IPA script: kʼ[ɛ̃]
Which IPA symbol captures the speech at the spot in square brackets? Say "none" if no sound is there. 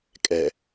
ɛ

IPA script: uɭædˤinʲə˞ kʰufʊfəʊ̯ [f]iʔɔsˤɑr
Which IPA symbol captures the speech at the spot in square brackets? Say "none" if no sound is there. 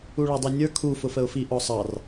f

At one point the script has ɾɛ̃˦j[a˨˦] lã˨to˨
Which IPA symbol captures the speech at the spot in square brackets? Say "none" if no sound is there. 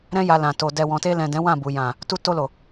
a˧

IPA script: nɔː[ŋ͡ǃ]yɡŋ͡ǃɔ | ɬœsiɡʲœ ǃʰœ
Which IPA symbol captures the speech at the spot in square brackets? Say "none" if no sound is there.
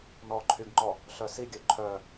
ǃʰ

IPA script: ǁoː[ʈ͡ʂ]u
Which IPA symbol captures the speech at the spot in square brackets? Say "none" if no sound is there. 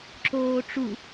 ʈ͡ʂ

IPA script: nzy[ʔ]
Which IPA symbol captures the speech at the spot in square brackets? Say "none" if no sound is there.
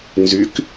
k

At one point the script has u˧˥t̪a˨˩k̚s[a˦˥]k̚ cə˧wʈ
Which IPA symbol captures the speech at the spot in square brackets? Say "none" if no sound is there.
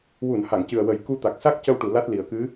a˦˥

